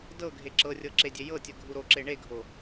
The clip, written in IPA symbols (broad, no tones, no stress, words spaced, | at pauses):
dɤɡʱe ǁɤrʲɤ ǁedʲejɤtʲə ɡʱuɾoǁe ɳeɡʱo